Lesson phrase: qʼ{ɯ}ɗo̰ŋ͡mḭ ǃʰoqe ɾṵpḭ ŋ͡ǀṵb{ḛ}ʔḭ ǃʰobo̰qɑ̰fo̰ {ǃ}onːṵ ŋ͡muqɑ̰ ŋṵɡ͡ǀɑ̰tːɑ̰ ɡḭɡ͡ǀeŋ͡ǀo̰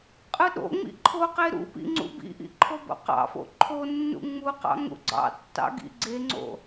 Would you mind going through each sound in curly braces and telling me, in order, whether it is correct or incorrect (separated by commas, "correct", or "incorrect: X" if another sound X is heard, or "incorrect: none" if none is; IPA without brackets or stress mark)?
correct, incorrect: ḭ, incorrect: ǃʰ